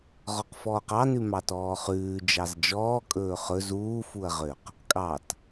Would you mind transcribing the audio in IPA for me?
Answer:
ʁ ɔ q f ɔː q ɑ n ʉ m ɑ t ɔː χ ʉː d͡ʒ ɑ z d͡ʒ ɔː kʼ ɵː χ ɵ z uː f u ɐ̯ ʁ ø q | kʼ ɑ t

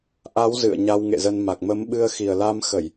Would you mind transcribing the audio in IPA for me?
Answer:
ʔ a˨˦ w z ɨ̰˧˨ ə̯ ɲ a˧ w ŋ ḛ˧˨ z ə˧ n m a˨˩ k̚ m ə˨˦ m ɓ ɨ˧ ə̯ x i˨˩ ə̯ l a˧ m x ə˧˩˨ j

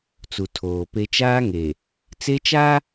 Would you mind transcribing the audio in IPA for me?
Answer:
t͡s u˨ tʰ oː˨ p e˦ t͡ʃ aː˦ ŋ e˨ | t͡s e˦ t͡ʃ a˦

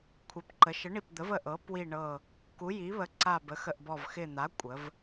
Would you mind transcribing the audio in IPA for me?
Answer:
kʷʰ ɛ˩˧ p ǃ ə˩˧ ʃ ə˩˧ ɳ i˨˩ p d̪ ə˩˧ v ə˨˩ ʔ ɤ˩˧ p w i˨˩ ɳ ɤ˨˩ | k u˩˧ j i˩˧ β ə˩˧ ǀ a˨˩ b ə˩˧ x ə˨˩ ʔ b ɔ˨˩ v x ɪ˨˩ n̪ a˩˧ kʷʼ ə˩˧ v

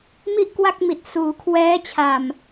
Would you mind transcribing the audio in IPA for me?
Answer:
m i˥˩ ʔ k w a˥˩ k̚ m i˨˩ t̚ s uː˩˦ kʰ w ɛː˦˥ t͡ɕʰ a˨˩ m

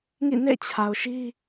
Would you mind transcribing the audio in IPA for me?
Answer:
ŋ ḭ˦˨ n ḛ˦˨ t͡ɕʰ a˨ ʊ̯ ʃ i˦

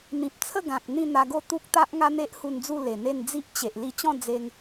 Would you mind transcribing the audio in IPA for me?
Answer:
n̪ ĩ˨ p̚ t͡sʰ ə˥˧ ɡ ã˨ k̚ n̪ ĩ˥˧ n̪ a˧ ɡ o˥˧ t̪ u˦ k̚ t̪ a˦ ʔ ŋ a˦ n̪ e˦ ʔ h u˧ n d͡z u˥˧ l e˨˩ n̪ e˥˧ n d͡z i˦ ʔ t͡ɕ e˨ ʔ l i˧ t͡ɕ ɔ̃˥˧ d͡z e˧ ŋ

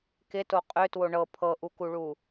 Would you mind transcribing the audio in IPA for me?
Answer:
k ɪ t o qʼ ø t w o ɳ ɤ pʰ ɤ ʔ u k u ɭ u

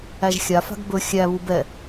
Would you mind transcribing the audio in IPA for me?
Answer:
æ ʒ xʲ a f a̤ ɡ b ɵ xʲ æ β u b ɛ

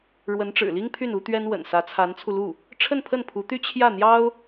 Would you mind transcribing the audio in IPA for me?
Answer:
ɻ w ə˧˥ n ʈ͡ʂ ɻ̩˨˩ l i˥ ŋ pʰ y˥˩ n u˥ t̪ ɥ ɛ˥ n w ə̰˨˩ n s ä˧˥ t͡sʰ a˧˥ n t͡sʰ u˧ l u˥˩ | ʈ͡ʂʰ ə˥˧ n pʰ ə˥˩ n pʰ u˧˥ t̪ y˥ t͡ɕʰ j ä˥˩ n̪ j ɑ˥ ʊ̯

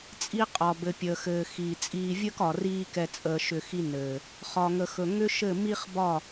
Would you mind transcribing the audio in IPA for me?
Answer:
t͡sʼ i˦ qʼ ɒ˨ b ɘ˨ pʲ əː˨ x ɘː˨ x iː˨ t͡sʼ iː˧ vʲ əː˦ k ɒ˨ r iː˦ k ɛ˧ t͡sʼ əː˧ ʃ ʏ˧ x i˦ n ɘː˨ | χ ɒ˨ ŋ ə˨ x ɵ˨ ŋ ʏ˦ ʃ ɘ˦˨ m i˦ χ b ɒ˦˨

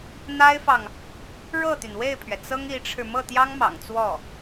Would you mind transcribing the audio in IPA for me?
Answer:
n̪ a˥ ɪ̯ f ɑ˨ ŋ | ɻ ɤ˥˩ t̪ y˩ n w e˥˩ ɪ̯ pʰ ɥ ɛ˩ t͡s ɤ˥ ŋ i˧˥ ʈ͡ʂʰ ɻ̩˧ m ɤ˥˩ t̪ j ɑ˥ ŋ m ɑ̰˨˩ ŋ t͡s w ɔ˥˩

